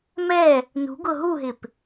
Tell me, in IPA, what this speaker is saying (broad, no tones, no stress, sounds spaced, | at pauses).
m ɛ | n ṳ ɡ ʊ ɦ u ɦ ɪ p